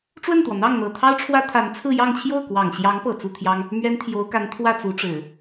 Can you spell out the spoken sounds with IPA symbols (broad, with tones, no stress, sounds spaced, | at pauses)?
ʈ͡ʂ w ə˥˩ n t̪ w ɔ˩ n̪ ɑ˥˩ ŋ n̪ ɤ˨˩ t̪ʰ ɑ˥ ʊ̯ ʈ͡ʂʰ w ä˥ t̪ʰ a˧˥ n t͡sʰ ɹ̩˥˧ j ɑ˥˧ ŋ t͡ɕʰ j o˥˩ ʊ̯ k w ɑ˨˩ ŋ ɕ j ɑ˧˥ ŋ p ɤ˨˩ t͡s u˥˩ t̪ʰ j ɑ˥ ŋ | m ɥ ɛ˥ n t̪ʰ j o˧˥ ʊ̯ k a˧˥ n t̪ʰ w ä˥˩ t͡s u˧˥ ʈ͡ʂ ɻ̩˨˩˦